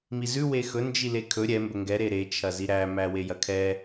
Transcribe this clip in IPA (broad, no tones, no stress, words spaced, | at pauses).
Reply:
mizʉ wexɵ nd͡ʒilekʰɵ ɾʲɛ mbɵŋɡɛ ɾeɾet͡ʃʰɐzi ɾæmæ wejɐkʰɛ